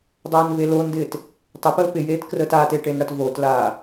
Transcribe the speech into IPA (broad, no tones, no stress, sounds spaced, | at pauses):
dˤ aː n v e l o n d ɪː t | tˤ ə p əː p ɪ j eː t k r əː t aː t e ʈ e n ɽ ɐ t v o t l aː